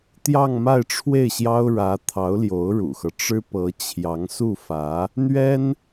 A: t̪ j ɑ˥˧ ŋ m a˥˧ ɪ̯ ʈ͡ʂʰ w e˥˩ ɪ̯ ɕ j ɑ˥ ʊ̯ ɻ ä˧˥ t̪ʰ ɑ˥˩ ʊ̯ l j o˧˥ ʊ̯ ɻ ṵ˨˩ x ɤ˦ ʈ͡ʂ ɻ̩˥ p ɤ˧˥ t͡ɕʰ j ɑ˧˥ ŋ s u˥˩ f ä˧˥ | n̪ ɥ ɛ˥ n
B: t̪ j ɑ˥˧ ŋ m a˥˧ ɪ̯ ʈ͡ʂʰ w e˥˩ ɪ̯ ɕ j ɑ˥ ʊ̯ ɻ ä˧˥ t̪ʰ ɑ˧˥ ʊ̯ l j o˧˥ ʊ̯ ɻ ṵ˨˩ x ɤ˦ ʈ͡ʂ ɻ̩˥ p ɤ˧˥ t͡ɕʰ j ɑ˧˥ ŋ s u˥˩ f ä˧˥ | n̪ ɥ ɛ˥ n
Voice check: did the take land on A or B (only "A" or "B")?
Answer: B